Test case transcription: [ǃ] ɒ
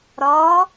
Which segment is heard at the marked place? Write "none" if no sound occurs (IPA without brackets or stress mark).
ɾ